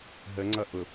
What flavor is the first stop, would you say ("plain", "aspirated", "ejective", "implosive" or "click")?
click